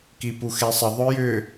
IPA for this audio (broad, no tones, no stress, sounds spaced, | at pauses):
k i p u x e sˤ ə ðˤ œ j ʏ